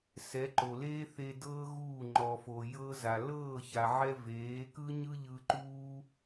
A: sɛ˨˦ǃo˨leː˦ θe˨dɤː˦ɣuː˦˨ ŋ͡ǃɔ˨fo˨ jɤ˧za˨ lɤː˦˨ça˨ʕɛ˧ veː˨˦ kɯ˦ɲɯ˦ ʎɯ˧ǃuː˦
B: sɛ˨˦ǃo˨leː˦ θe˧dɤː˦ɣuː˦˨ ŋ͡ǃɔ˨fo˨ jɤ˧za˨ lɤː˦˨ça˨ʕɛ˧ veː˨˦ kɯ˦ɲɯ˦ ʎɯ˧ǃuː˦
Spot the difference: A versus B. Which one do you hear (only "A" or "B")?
B